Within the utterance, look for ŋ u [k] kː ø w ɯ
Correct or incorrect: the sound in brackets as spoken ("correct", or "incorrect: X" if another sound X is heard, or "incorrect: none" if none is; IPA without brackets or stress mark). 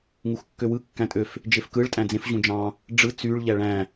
incorrect: x